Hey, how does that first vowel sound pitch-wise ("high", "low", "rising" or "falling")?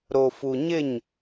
low